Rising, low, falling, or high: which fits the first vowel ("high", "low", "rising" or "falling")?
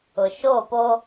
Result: low